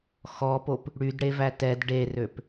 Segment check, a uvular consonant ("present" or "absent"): absent